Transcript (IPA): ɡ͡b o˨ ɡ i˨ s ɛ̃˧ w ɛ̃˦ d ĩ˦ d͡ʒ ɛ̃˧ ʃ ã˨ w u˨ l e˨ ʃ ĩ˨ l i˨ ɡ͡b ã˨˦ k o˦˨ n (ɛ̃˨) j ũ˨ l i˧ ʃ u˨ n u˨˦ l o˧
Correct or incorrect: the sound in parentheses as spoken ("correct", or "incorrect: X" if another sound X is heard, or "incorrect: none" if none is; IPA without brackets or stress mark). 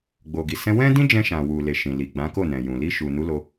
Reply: correct